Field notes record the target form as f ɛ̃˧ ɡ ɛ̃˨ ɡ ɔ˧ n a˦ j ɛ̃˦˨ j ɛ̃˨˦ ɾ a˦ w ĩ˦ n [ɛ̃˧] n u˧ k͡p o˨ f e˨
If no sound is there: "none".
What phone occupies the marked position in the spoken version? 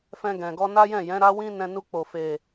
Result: ɛ̃˧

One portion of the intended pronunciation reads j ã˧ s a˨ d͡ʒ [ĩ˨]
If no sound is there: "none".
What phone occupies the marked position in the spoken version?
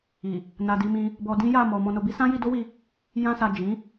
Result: ĩ˨˦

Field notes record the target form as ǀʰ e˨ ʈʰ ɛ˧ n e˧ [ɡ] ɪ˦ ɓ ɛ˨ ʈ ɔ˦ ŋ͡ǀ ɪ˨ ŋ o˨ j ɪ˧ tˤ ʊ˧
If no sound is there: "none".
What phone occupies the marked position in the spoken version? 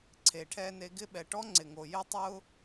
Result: ɡ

